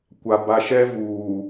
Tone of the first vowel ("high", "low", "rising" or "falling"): low